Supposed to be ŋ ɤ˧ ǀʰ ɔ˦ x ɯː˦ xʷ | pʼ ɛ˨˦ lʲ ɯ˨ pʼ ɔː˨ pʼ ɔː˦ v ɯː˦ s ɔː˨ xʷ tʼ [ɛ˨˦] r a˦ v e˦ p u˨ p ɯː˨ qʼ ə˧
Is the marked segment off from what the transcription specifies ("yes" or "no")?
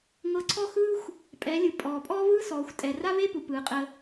yes